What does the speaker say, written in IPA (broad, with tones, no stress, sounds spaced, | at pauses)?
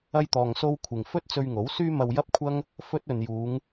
ɐ˧ j t̪ ɔː˨ ŋ s o˧ w kʷʰ ɪ˨ ŋ f ɵ˥ t̚ t͡s ɵ˧ ɥ ŋ o˨˥ w s yː˥ m ɐ˧ w j ɐ˥ p̚ kʷʰ ɐ˥ ŋ | f ɵ˥ t̚ ɵ˨ n j uː˨˧ ŋ